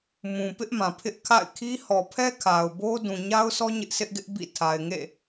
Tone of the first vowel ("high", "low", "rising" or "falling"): low